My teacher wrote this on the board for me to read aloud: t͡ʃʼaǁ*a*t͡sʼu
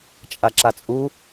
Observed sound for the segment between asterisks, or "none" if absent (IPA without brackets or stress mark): a